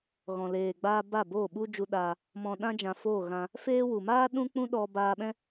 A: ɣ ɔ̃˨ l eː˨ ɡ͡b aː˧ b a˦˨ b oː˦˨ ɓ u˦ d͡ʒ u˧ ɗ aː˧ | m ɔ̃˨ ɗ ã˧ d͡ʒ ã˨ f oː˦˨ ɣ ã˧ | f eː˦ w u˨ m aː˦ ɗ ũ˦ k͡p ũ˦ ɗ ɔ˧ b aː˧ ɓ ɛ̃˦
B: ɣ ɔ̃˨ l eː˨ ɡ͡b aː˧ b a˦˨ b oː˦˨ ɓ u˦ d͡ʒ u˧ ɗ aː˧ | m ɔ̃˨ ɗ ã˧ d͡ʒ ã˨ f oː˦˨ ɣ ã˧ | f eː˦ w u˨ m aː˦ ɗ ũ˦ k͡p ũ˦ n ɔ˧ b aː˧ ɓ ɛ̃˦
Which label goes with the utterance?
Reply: A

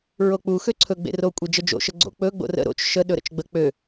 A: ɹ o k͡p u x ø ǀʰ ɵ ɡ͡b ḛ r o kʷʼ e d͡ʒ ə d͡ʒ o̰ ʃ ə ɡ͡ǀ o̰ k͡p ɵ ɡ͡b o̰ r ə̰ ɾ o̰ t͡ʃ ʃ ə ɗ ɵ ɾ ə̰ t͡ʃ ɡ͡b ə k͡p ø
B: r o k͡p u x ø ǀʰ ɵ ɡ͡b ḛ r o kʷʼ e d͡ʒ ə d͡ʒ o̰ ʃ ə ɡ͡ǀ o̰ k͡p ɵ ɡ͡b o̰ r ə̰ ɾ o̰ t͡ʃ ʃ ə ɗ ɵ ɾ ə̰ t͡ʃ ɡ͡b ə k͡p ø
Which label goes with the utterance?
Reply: A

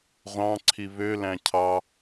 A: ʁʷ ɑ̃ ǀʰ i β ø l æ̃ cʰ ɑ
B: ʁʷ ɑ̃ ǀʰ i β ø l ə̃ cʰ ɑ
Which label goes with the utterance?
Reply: A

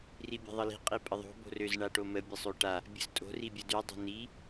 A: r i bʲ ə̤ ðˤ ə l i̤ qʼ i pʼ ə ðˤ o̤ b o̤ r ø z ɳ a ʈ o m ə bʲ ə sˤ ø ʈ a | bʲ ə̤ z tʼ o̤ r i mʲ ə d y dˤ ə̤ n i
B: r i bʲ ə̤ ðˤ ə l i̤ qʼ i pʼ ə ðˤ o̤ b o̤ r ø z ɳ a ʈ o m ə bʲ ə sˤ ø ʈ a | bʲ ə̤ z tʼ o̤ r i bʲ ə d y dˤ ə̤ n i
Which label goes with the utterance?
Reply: B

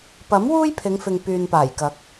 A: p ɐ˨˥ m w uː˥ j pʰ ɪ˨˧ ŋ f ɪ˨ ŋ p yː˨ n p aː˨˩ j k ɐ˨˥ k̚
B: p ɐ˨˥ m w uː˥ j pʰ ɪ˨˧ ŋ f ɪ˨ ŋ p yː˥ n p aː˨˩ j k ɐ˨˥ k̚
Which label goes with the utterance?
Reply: A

